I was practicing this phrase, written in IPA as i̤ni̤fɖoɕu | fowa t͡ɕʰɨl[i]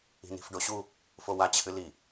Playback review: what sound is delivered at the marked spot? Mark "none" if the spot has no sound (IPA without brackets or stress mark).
i